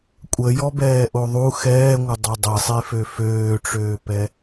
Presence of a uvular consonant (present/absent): absent